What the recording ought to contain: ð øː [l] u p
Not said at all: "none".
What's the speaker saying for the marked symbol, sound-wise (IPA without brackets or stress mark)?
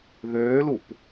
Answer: l